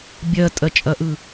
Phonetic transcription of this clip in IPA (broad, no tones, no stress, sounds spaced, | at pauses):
bʲ ɜ tʼ ɜ t͡ʃʼ ɐ ʔ ɯ